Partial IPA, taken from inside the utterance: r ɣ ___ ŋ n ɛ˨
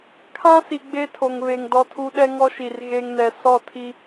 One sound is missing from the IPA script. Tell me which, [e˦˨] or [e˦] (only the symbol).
e˦